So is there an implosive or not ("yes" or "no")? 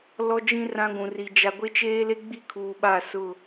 yes